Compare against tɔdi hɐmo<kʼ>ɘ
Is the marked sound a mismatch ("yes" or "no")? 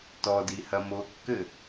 yes